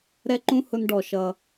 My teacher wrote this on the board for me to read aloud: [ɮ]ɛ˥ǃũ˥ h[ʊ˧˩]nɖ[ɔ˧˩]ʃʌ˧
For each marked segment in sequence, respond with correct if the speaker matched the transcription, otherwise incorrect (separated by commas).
incorrect, incorrect, correct